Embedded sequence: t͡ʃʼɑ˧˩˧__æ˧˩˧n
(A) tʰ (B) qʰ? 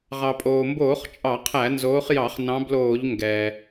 B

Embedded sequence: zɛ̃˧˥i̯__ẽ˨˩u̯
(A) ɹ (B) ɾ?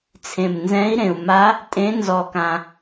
B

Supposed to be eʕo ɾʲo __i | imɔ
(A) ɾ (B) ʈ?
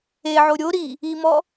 A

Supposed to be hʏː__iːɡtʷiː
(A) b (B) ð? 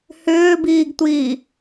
A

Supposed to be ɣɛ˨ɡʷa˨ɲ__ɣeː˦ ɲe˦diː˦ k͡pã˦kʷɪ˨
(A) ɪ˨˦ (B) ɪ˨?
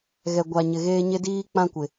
B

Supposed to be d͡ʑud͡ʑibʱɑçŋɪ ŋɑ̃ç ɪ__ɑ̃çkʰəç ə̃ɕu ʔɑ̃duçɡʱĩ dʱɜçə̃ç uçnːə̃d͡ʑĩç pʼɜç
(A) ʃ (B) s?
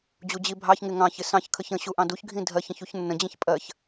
B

